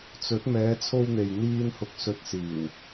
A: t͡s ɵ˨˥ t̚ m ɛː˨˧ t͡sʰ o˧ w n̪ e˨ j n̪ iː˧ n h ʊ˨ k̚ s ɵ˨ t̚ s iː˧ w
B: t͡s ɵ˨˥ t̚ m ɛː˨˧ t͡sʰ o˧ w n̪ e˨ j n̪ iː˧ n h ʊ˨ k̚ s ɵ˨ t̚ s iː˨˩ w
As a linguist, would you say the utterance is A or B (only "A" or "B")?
B